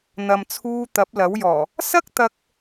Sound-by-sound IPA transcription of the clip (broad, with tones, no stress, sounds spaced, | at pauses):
n̪ ɐ˨ m t͡sʰ uː˧ t̪ ɐ˨˥ p̚ l ɐ˨˥ w j ɔː˨˩ | s ɐ˥ k̚ t̪ ɐ˥ k̚